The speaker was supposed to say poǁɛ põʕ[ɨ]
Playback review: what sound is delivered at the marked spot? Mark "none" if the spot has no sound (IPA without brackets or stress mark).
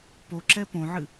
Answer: ɨ